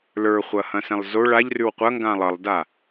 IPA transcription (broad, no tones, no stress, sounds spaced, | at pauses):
l ə˞ χʷ ɐ h ɐ̃ s ɛ̃ lˠ z o ɭ a ʎ r ʉ w qʷ ɐ ŋ ɡ ã lˠ ʌ lˠ d a